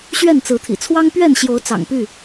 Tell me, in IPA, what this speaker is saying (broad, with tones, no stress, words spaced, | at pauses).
ɕɥɛ˥˨nt͡sɹ̩˨˦t̪ʰḭ˨˩ t͡sʰwɑ˦ŋpɥɛ˥˨nɕjo˨˦ʊ̯ t͡sɑ̰˨˩ŋpy˥˨